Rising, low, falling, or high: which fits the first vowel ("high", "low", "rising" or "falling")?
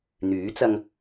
rising